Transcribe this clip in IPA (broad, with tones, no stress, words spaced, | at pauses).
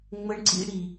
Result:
ŋ͡mə˦ɳǀḭ˦ɽi˧